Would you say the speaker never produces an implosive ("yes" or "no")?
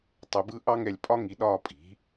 no